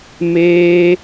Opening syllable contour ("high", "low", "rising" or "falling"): high